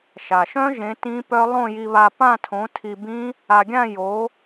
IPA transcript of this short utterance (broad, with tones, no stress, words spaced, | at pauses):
ʃa˩ʃœ̃˦˥ ʒẽ˨˥tĩ˦˥pœ˦˥ lˠõ˥˧ji˧βa˧ pã˥˧tʰõ˨˥tʰi˧bĩ˦˥ | a˧ɡʲã˥˧ jo˨˥